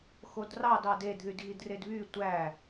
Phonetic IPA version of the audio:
x o d r ɑ d ɑ d e d ð y d ɣ i d r e d β y tʷ æ

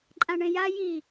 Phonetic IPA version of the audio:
ǃʼ ã ɳ ẽ j a j i

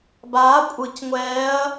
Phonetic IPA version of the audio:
b aː kʷʼ ɯ c ŋʷ ɛː ɐ̯

